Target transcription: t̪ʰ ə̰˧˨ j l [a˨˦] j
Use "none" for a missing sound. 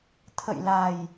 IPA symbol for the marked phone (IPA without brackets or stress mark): a˨˩